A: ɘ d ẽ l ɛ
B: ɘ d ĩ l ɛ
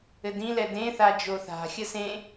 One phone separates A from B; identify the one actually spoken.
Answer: B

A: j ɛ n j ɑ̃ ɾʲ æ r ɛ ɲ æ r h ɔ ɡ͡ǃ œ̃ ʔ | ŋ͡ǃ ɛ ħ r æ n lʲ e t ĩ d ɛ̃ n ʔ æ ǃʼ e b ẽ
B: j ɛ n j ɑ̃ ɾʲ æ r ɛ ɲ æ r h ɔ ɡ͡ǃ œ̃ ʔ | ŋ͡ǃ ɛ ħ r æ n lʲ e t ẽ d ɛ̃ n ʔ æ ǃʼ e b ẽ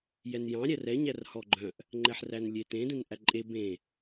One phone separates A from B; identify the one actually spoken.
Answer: B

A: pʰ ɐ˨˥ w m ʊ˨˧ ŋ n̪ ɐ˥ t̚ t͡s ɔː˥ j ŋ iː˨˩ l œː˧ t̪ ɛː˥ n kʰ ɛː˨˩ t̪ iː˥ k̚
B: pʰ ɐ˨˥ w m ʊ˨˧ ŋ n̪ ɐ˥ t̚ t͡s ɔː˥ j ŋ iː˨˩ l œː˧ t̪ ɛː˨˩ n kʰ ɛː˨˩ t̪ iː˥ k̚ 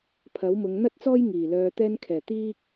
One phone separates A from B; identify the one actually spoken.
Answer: A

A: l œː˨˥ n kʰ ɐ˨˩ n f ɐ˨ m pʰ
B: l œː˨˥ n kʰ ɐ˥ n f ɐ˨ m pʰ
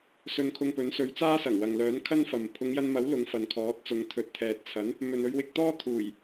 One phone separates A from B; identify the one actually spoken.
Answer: B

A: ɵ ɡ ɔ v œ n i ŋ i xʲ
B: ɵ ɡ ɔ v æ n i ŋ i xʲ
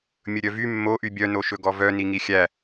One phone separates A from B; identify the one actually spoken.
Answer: A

